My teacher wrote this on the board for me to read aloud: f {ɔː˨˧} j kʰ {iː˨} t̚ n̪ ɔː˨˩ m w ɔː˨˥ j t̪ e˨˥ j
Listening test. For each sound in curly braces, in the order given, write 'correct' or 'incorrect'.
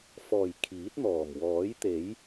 incorrect, incorrect

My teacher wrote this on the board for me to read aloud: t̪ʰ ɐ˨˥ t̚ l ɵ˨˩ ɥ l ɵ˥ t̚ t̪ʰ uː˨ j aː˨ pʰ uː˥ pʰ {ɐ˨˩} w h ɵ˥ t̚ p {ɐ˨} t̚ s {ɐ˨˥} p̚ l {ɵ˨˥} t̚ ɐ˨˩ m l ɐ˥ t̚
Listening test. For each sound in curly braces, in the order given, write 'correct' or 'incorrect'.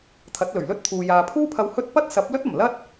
incorrect, incorrect, correct, incorrect

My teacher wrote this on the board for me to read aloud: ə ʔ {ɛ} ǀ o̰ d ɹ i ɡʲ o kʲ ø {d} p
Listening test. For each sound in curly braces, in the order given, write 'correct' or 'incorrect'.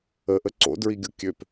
incorrect, incorrect

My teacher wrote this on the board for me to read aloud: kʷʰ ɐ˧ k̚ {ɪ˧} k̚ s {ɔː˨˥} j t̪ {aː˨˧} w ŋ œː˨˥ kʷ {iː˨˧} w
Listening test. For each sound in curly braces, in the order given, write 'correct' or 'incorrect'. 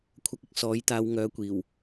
correct, correct, correct, incorrect

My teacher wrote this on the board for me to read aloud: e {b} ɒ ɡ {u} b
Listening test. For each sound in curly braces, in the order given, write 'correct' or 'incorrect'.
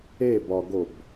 correct, incorrect

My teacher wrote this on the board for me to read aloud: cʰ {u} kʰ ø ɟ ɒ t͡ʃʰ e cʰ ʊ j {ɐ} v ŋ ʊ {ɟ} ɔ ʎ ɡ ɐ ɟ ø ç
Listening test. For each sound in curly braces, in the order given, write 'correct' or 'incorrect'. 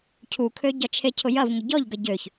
correct, correct, correct

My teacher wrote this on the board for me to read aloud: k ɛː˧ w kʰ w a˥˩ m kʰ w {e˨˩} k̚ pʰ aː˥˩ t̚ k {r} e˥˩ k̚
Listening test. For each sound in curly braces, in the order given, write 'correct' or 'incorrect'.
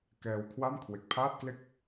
correct, incorrect

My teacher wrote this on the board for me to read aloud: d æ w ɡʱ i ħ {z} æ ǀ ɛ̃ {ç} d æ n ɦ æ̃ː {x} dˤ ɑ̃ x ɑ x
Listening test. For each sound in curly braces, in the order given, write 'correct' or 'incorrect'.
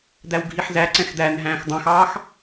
correct, incorrect, correct

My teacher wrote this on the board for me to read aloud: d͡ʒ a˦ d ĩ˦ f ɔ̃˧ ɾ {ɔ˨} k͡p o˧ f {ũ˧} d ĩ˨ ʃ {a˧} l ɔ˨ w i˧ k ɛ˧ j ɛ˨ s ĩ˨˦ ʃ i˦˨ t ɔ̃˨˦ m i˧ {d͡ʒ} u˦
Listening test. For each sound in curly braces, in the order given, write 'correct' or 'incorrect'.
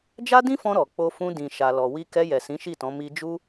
correct, correct, incorrect, correct

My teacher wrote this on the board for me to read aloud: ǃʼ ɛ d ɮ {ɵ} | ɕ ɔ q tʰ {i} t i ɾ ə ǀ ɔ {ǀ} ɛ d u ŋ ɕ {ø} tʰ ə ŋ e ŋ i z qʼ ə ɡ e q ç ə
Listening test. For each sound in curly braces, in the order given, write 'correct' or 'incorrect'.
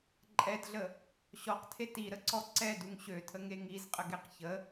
incorrect, incorrect, correct, correct

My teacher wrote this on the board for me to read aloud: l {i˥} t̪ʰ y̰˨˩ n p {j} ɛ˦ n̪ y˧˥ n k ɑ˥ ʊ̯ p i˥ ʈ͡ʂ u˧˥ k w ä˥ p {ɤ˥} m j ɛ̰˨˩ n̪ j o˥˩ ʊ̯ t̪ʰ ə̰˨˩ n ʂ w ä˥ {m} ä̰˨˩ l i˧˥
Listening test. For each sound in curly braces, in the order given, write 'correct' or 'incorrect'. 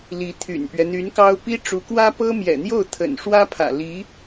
incorrect, incorrect, correct, incorrect

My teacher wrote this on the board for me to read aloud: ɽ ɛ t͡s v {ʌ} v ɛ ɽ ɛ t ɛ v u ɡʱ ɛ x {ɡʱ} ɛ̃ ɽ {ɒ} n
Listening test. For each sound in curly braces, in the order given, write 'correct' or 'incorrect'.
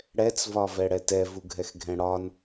incorrect, correct, correct

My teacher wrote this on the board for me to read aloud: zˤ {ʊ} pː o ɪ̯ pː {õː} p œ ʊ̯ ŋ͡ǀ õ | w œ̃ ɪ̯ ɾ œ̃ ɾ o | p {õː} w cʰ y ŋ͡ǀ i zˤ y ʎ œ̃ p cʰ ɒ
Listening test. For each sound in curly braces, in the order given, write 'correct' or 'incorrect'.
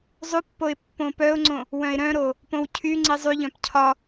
incorrect, incorrect, incorrect

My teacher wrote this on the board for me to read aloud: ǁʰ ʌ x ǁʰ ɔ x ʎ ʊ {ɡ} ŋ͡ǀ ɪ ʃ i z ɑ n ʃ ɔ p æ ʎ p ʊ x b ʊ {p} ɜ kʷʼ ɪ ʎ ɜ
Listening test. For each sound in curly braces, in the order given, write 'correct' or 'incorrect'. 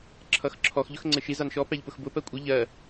incorrect, correct

